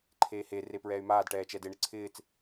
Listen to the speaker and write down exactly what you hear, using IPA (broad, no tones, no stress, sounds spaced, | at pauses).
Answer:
ǃʰ eː h e r e p ɹ ɛː y̯ m aː d ʈ ɛː t͡ʃ ɛ d ɪ ɳ ɪ ǀʰ ɪː t͡s